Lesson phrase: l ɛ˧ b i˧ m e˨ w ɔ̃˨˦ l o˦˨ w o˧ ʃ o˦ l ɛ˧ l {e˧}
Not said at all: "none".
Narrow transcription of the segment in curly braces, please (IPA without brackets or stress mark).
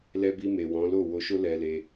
e˧